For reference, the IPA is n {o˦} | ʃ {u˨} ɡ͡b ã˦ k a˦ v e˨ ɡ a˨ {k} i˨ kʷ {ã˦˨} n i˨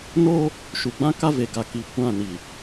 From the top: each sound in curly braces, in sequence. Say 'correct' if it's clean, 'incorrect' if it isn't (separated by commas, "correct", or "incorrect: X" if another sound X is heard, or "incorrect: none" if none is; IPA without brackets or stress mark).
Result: correct, correct, correct, correct